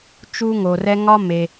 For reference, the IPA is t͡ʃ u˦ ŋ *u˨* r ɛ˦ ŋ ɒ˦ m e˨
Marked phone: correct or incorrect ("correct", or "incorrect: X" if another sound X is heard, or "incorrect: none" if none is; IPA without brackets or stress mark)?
incorrect: o˨